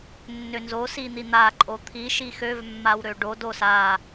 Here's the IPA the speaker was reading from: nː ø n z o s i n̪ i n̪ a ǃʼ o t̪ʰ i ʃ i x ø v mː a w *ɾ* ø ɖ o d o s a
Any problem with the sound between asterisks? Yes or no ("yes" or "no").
no